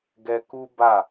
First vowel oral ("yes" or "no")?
yes